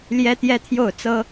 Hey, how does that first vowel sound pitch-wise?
high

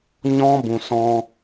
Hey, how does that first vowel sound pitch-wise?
high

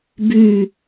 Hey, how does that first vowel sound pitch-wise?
falling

